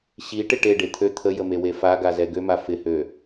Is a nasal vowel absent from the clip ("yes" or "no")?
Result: yes